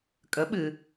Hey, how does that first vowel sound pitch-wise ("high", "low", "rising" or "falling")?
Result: rising